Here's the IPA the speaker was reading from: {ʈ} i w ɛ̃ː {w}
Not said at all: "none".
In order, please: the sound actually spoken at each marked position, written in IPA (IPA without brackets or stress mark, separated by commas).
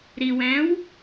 ɾ, w